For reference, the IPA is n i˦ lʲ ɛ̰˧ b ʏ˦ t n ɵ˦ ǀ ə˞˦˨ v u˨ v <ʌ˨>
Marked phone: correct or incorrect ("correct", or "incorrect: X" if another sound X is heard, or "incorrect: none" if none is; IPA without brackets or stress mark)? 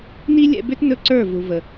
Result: incorrect: ə˨